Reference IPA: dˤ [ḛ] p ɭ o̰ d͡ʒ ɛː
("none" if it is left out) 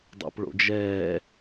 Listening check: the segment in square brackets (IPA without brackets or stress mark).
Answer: ḛ